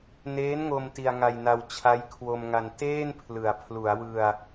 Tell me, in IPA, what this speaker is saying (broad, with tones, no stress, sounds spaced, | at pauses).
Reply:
n eː˦˥ n ŋ o˧ m t i˧ a̯ ŋ a˧ j n a˧ w t͡ɕʰ a˦˥ j kʰ w o˧ m ŋ a˧ n t eː˥˩ n pʰ l ɯ˨˩ a̯ pʰ l u˩˦ a̯ w ɯ˧ a̯